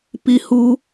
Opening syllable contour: high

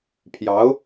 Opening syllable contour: rising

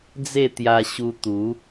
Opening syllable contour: falling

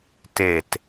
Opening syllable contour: falling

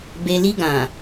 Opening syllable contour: low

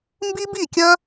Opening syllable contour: high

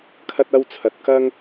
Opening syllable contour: high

